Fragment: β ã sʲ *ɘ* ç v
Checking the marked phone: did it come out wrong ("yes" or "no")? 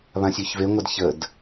yes